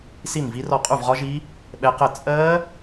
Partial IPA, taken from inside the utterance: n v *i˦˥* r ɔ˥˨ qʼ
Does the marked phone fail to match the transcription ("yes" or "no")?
no